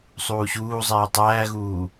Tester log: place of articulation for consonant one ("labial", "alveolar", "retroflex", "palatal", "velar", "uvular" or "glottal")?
alveolar